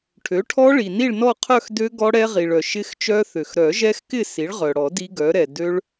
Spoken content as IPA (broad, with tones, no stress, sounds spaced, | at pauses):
ʈʰ ø˩˥ ʈʰ ɔ˦˥ ɭ i˩ n i˥˧ ɭ n ɔ˥˧ qʰ œ˥˧ x d ø˦˥ ɡ ɔ˦˥ ɽ ɛ˦˥ ʁ i˩ ɭ œ˩ ʃ ɪ˦˥ x t͡ʃ œ˦˥ θ ø˩ x ɾ œ˨˩˦ ʒ ɛ˦˥ x k ɪ˥˧ s i˩˥ ɭ ʁ œ˩ ɽ ɔ˨˩˦ d i˦˥ ɡ œ˩˥ ɾ ɛ˩ d ø˦˥ ɭ